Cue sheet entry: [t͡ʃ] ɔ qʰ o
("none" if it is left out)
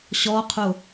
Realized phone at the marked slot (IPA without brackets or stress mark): ɕ